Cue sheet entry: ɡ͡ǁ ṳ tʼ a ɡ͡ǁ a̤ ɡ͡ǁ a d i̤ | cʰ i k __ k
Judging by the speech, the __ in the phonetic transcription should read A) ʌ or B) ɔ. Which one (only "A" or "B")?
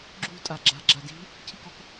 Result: B